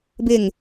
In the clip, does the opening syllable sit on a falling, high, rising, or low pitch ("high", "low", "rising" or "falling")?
falling